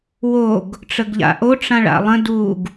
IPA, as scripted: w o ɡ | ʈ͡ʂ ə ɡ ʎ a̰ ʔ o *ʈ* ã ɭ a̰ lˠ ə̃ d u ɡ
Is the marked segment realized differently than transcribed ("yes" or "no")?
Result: yes